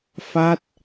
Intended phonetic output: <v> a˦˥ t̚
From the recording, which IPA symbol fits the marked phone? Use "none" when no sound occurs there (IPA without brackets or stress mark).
f